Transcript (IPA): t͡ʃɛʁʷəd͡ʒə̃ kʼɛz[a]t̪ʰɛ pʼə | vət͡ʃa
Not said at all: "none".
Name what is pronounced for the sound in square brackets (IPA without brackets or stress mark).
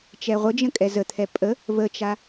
ə